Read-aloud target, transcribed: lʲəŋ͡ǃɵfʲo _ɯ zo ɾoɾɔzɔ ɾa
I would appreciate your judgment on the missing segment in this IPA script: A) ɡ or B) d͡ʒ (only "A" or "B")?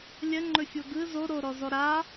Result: A